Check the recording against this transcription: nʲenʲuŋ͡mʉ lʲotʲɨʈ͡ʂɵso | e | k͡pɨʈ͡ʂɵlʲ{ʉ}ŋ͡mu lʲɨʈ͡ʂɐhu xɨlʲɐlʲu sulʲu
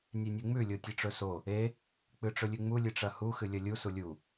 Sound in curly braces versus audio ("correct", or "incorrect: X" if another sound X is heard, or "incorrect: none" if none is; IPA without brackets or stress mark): correct